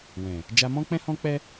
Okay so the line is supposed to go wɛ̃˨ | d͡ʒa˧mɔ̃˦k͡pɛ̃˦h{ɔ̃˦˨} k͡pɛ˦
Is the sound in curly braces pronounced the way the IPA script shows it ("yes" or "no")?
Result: no